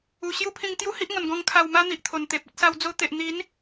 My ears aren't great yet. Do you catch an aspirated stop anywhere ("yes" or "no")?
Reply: yes